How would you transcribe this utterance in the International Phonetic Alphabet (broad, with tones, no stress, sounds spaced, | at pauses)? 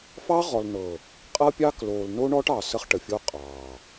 f ɑ˦ ʁ ɔ˨ l n ɤ˨ | qʼ ɤ˦ pʲ ɑː˦ k l oː˨ l n o˦ ɳ ɔ˦ ʈ ɑ˨ s ə˦ χ ʈ ə˨ fʲ oː˦ qʼ ɑː˨